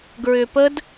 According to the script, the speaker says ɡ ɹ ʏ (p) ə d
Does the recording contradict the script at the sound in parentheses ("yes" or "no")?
no